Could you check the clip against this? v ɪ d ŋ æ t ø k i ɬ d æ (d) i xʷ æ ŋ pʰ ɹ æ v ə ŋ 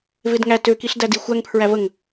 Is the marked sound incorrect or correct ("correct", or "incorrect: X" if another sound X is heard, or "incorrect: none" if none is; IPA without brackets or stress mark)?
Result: correct